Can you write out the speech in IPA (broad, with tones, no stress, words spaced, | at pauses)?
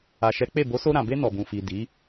a˨ʃɛ˨˦ k͡pe˦˨ bo˨˦so˧ɾã˨be˧ nɔ˨bũ˨fi˨ di˨˦